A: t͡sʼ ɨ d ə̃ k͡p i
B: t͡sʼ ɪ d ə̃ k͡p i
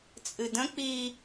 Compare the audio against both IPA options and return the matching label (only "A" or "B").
A